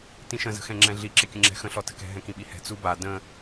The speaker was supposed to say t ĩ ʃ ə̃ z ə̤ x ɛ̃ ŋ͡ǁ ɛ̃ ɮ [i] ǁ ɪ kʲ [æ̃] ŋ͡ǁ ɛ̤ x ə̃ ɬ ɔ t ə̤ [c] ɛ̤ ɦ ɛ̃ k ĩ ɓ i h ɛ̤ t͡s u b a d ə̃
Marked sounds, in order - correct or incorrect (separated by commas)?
correct, incorrect, incorrect